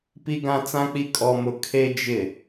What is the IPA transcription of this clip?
p i˦ ɡ ã˦ t͡s ã˦ k͡p i˦ kʼ ɔ˦ m ʊ˦ kʰ e˦ d͡ʒ ɪ˦˨

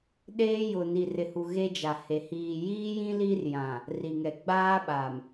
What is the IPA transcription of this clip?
ɗ eː˦ j ʊ˨ n i˨ r ɪ˨ h u˨ ɣ e˦ d͡ʒ a˨ h e˨ h iː˨ j iː˦ j ĩ˦ l i˦ r j ã˨ | r i˨ ŋ ɛ˨ ɡ͡b aː˦ ɓ a˨ m

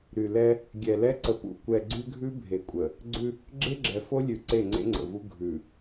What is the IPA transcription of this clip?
ɾ y˨ l ɛ˦ | ɡʲ ɛ˨ l ɛ˦ ǀ ə˨ p ṵ˨ kʷ ɛ˨ ɡ͡ǀ y˦ ɡʱ ʉ˦ bʱ e˨ kʷʼ ə˨ | ɡ͡ǀ ʉ˦ | ɡ͡ǁ e˦ ɡ͡ǁ ɛ˨ f o˦ lʲ ʉ˨ ǀ e˦˨ ŋ͡ǀ ḛ˦ ŋ͡ǀ ə̰˨ v u˦ ɡʱ ʉ˨

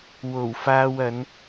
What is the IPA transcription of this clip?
w o˨˩ w f aː˧ w ɐ˨˧ n

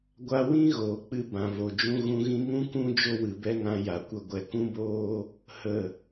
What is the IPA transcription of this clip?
ɡʷ a˧ w ĩ˦ ɣ oː˨ k͡p ɨ˧ b ã˨ v o˨ d͡ʒ ũ˧ ɣ ũ˧ ɣ ĩ˧ ŋ ũ˦ k ũ˦ d͡ʒ o˦ w ɨ˨ b ɛ˦ ŋ ã˧ j a˨ kʷ ə˧ ɡʷ ɛ˨ k ũ˦ b oː˦ | h ə˦˨

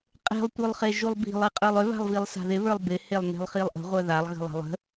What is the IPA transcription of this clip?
qʼ e̤ lˠ tʷ œ lˠ χ e ʒ u lˠ b i̤ lˠ i qʼ ə˞ lˠ ʏ β a̤ lˠ v i lˠ s a̤ ð ɪ β ə˞ lˠ b ɪ h e lˠ n e̤ lˠ χ i lˠ ʔ ə̤ ʁʷ œ ð a lˠ ɣ ə̤ lˠ a̤ lˠ ə̤

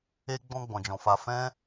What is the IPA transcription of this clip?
e˧ ɡ͡b ɔ̃˧ ɡ͡b ɔ̃˨ d͡ʒ ɔ̃˨ f a˧ f ɛ̃˦

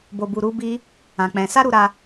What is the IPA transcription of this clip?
b o˧ b u˧ ɾ u˦ b i˦ | ã˧ k͡p ɛ̃˧ s a˦ ɾ u˧ ɾ a˧

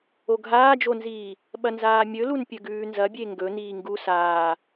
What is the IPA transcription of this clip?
o ɡʱ aː d͡ʒ o n z iː | ɓ ɐ n z aː mʲ ɵ l u n pʲ ɵ ɡ ʉː n z ɐ bʲ e ŋ ɡ ɵ n iː ŋ ɡ u s aː

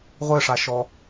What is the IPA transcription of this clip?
ʁʷ ɘ ʂ a ʃ ɔ

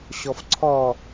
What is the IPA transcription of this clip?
ɕ ɔ f ǀʰ ɔ

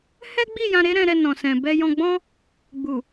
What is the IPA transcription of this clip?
h ɛ˦ ɡ͡b i˦˨ j ã˧ ɾ e˦ ɾ ɛ̃˧ ɾ ɛ˧ n ɔ̃˨ s ɛ̃˨ b ɛ˧ j ɔ̃˧ ɡ͡b ɔ̃˦ | ɡ͡b u˨

